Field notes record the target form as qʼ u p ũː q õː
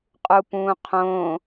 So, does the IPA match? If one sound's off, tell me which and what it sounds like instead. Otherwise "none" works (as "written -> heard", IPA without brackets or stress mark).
q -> qʰ